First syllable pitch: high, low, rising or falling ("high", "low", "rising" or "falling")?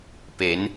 rising